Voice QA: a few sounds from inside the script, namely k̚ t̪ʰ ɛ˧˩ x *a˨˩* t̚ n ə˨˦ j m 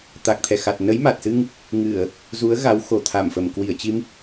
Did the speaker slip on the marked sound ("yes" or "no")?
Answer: no